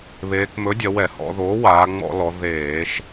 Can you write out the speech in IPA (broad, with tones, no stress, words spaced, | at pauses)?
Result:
βeː˩˧kmɵ˩˥dʲɐ˩˧ wɛ˧˩˧hɔ̰˩˧ ðoː˩˥waː˩˧ŋ͡mɔ̰˧˩˧lɔ˩˧ ðeː˧˩˧ʃ